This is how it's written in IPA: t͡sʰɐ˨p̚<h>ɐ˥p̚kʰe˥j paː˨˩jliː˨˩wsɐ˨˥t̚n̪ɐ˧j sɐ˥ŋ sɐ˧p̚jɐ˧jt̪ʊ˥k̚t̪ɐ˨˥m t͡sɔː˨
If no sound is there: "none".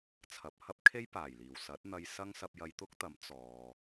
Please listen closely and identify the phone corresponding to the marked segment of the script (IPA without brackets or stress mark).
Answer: h